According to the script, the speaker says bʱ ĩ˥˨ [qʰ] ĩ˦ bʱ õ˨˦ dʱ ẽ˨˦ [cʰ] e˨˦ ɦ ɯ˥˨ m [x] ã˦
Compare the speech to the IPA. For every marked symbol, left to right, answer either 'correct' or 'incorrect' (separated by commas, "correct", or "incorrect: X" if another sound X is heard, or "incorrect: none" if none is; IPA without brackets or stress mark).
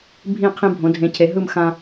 correct, correct, correct